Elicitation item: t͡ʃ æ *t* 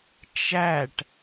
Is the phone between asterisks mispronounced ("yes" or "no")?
yes